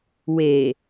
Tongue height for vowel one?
mid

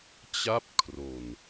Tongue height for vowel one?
low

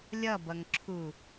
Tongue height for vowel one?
mid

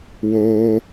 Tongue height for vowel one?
mid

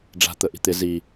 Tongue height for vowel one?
low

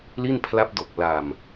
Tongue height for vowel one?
high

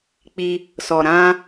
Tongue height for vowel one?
high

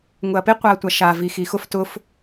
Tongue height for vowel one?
high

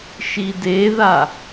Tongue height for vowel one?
high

